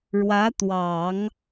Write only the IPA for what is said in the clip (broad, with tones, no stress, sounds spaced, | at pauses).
ɻ w ä˧˥ t̪ w ɑ˨˩˦ ŋ